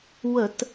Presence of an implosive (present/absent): absent